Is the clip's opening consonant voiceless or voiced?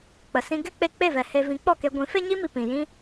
voiceless